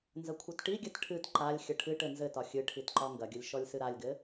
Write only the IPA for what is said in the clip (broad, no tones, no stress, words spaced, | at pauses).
nzəkʷʰɘtʈiɡʲɘt ʈʰɨt ǃalʲ xʲəʈʰɨʈɘ nzɘtɒ xʲɨʈʰit ǃɒŋɡɐɡʲəlʲ ʃɔlʲsɨɾalʲɡɘ